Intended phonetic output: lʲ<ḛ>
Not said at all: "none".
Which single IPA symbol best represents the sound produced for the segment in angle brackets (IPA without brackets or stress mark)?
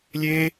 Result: e